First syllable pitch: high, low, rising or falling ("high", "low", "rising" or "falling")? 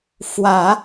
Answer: low